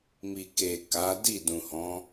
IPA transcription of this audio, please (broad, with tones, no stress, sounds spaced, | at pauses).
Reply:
m i˨ k e˨ k a˨˦ d i˦˨ d ũ˨ h ɔ̃˨˦